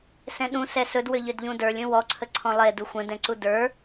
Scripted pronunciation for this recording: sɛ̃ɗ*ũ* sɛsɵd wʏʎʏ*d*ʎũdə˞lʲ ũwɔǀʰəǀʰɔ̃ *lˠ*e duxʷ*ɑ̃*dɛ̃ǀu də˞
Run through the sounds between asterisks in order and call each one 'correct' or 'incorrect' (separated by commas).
correct, correct, correct, incorrect